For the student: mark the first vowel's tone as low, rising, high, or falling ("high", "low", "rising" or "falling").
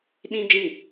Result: high